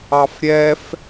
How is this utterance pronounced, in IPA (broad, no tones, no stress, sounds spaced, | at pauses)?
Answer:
ɑ f ɾʲ ɛ f